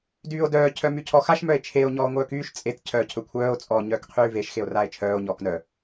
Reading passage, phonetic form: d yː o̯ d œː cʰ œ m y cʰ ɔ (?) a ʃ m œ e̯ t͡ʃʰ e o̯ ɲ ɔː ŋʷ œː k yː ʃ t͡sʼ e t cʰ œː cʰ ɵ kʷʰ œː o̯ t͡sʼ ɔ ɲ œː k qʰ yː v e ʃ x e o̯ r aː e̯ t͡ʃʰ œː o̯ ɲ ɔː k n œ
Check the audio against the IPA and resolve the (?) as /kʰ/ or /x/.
x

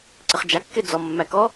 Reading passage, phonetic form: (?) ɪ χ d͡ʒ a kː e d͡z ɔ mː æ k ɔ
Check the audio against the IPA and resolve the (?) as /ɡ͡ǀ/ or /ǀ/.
ǀ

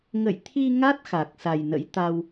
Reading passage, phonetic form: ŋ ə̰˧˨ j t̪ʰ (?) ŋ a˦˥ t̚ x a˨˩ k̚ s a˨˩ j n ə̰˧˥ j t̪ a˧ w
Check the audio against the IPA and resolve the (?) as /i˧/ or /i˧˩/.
i˧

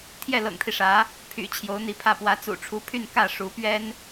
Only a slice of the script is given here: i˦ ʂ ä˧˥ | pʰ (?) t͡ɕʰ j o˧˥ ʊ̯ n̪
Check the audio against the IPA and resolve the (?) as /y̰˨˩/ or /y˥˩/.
y̰˨˩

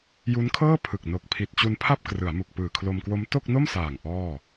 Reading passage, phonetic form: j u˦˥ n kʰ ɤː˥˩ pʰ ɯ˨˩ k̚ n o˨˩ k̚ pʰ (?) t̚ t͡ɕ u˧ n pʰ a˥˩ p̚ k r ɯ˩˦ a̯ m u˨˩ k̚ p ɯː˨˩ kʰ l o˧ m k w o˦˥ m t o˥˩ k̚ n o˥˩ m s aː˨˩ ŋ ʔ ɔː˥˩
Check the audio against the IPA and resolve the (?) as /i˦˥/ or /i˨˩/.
i˨˩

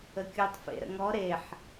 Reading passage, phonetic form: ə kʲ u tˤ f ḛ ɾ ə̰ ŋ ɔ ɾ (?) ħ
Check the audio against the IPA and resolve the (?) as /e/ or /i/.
e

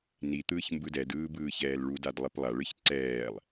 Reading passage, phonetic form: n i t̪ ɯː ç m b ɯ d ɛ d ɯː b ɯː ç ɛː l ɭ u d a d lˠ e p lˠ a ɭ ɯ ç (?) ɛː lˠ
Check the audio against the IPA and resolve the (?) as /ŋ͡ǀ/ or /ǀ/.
ǀ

